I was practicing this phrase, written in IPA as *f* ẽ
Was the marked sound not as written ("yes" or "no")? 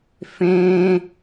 no